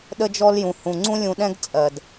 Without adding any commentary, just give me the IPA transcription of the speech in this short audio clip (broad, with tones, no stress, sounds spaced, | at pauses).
ɗ ə˧ d͡ʒ ɔ˧ l j ũ˨ h ũ˨ ŋ͡ǀ ũ˦ lʲ ũ˧ ɗ ɛ̃˦ ɡ t͡sʼ ɜ˨ d